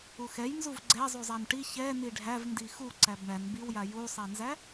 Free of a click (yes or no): no